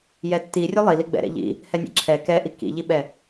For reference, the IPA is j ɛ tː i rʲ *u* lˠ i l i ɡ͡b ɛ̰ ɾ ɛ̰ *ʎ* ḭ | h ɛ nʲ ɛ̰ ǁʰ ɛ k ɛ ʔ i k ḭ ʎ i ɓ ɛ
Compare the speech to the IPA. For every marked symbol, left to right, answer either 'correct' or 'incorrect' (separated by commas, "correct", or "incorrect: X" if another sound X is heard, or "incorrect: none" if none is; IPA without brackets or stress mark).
correct, correct